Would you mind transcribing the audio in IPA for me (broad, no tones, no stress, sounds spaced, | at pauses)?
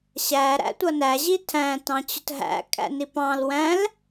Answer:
ɕ æ ɾ æ̰ tʷ ʌ n æ ʑ i tʰ æ̃ t ɑ̃ t͡ɕ ʊ t ɦ æ̰ kʼ æ̰ n i p ɑ̃ l w æ̃ l